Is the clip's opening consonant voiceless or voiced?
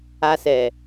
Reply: voiceless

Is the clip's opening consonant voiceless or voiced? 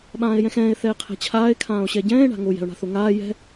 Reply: voiced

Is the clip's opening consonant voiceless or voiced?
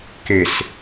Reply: voiceless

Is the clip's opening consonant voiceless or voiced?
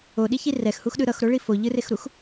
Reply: voiced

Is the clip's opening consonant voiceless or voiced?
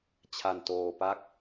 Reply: voiceless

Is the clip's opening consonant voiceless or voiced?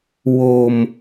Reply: voiced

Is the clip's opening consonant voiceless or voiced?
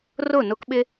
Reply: voiced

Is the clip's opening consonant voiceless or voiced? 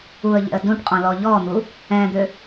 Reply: voiced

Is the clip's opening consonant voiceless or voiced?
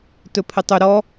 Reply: voiceless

